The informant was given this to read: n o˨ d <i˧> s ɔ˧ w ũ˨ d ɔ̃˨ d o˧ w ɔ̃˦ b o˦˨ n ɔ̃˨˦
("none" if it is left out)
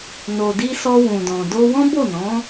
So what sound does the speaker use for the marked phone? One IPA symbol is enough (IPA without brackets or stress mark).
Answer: i˧